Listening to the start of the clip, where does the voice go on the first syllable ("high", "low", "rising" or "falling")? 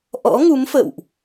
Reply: rising